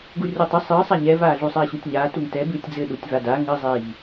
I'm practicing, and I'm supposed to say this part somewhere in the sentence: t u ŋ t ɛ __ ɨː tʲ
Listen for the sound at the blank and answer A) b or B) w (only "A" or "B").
A